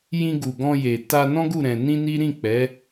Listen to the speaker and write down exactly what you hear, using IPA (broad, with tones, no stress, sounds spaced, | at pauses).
j ĩ˧ ɡ u˨ ɡ ɔ̃˧ j e˨ t a˧ n ɔ̃˦ ɡ u˦˨ ɾ ɛ̃˧ n ĩ˦ n i˦ ɾ ĩ˦˨ k͡p ɛ˨˦